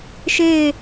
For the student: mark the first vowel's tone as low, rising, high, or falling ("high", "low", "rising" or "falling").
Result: falling